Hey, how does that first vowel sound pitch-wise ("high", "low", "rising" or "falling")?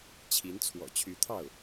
rising